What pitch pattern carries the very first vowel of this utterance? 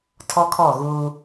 high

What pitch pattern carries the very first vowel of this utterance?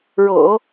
low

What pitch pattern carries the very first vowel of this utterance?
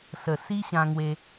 low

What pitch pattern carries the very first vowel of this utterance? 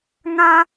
high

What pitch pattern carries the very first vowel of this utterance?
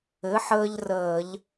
rising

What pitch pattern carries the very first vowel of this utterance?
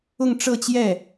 falling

